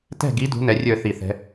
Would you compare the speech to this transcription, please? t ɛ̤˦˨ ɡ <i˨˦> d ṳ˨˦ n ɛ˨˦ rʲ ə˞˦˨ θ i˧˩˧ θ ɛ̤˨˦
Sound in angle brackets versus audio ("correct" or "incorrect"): correct